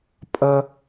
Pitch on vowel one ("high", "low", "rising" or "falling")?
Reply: high